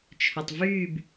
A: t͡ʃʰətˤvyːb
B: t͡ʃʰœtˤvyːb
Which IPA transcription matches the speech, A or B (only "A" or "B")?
B